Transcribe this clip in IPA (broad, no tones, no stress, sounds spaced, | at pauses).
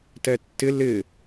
t ɛ tː ɪ l ɪ